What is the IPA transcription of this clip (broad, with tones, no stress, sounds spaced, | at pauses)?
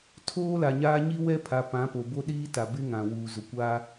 tʰ oː˦ l a˨ ɲ aː˦ ɲ i˦ w ɛ˦ pʰ a˨ p ã˨˦ p o˨ b o˦ ɗ iː˦ t a˨ b ɪ˦ ŋ ã˨ w uː˨ z ʊ˨ kʷ aː˦